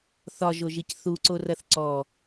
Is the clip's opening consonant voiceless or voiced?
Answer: voiceless